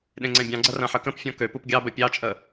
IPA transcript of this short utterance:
ɗẽŋ͡ǀɛ̃bʲɑ̃ɡ͡ǀɐ rɐ̃ħəkə̃pfʲɔ̃ køpup ɡʲɑbə pʲɑt͡ʃʼə

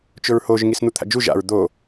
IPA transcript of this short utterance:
t͡ʃʊɹhoʒ ŋisn̪ut̪ʰa̰d͡ʒu ʒa̰ɹ d̪o

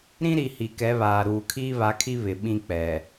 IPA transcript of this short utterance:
ɾĩ˦ɾi˨ hi˨kɛ˨˦βaː˨ɾuː˨ kʰiː˦βa˨˦kʰi˦ βɪ˨ɓĩ˦k͡pɛ˨

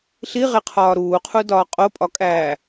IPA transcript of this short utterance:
ɬiʁeqʰɒː ɾuːqʰudɒː qʼopʼɒkʼæː

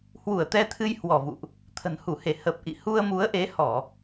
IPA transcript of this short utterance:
hwu˧˩ə̯t̪ɛ˧t̪ʰɨ˧j hwɔ˧˩vṵ˧˨ʔ | t̪ʰə̤˨˩nhu˧˩he˧˩ hə˨˩p̚ʔḭ˧˨ hu˧ə̯mu˨˦ə̯ʔe˨˦hɔ˧˩˨

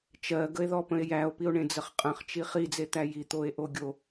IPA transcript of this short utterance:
t͡ʃɜɡəe̯ðɔpə̃e̯ jæo̯pio̯ɳẽd͡zəχ qʼə̃χt͡ʃi χid͡zet̪æ jit̪oe̯ʔo ɡʲo

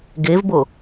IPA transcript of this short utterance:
ɡevbo

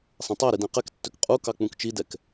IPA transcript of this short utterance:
sˤɛ̃tˤæɾi dæ̃qɛktːøk qʼu kɑk͡pũkt͡ʃidɛk

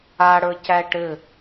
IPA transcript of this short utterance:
aɽə˞cæ ʈɘ

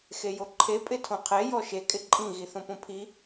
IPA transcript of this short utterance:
xejoǃʰe pʼɪtʰõqʰe jɔʃe kʼɪǃʼĩ ɣiθõpõpʰi

